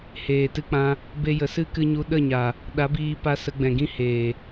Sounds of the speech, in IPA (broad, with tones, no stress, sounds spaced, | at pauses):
h eː˨ t ɨ˧ k͡p ã˧ | b e˧ j ə˨ s ɨ˦ k ɨ˧ ɲ u˧ ɗ ə˦˨ ɲ a˨ | ɗ a˨˦ b iː˧ p a˧ s ə˧ ɡ͡b ɛ̃˨ ɡ ĩ˦ h eː˨